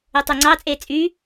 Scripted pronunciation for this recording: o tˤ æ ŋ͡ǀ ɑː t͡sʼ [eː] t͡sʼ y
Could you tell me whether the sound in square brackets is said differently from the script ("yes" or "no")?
no